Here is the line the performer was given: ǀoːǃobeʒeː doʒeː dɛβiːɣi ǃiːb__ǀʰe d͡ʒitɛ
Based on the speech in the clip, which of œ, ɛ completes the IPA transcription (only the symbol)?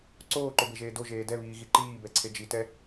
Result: ɛ